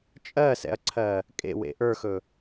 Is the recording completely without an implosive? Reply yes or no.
yes